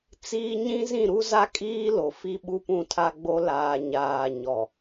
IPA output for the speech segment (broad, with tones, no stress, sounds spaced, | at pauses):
t͡s iː˦ ɲ ĩ˦ z ĩ˦˨ ɾ u˦ z a˦ kʼ iː˦ l o˨ f i˦ ɓ u˦ p ũ˦˨ tʰ a˦ ɡ͡b o˦ l aː˨ ɲ aː˨ ɲ ɔ˨